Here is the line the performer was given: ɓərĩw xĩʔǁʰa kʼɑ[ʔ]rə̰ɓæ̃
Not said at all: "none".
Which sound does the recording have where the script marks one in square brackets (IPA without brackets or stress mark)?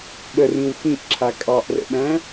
ʔ